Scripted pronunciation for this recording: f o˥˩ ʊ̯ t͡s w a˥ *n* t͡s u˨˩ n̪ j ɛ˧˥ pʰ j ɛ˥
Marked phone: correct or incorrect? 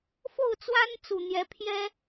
correct